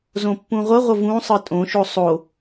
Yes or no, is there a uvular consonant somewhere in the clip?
yes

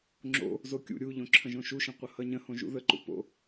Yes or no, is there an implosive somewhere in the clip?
no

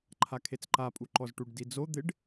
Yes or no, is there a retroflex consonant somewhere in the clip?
yes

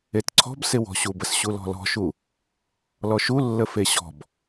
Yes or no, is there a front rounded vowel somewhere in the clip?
no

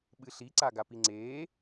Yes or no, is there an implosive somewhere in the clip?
yes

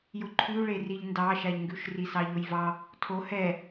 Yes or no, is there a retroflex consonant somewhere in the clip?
yes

